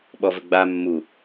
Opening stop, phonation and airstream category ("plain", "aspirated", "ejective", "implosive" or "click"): implosive